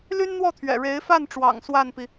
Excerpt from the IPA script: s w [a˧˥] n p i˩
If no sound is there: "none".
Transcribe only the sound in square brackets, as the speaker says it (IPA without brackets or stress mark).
a˥˩